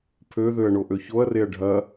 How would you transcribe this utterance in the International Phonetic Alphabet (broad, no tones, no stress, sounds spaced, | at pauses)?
pʰ ø ð ø ɐ̯ ɳ o ʔ ø ç o ɐ̯ r e ɐ̯ ɖʱ ɐ